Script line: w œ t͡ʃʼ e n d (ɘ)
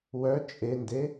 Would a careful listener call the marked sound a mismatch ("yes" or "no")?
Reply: yes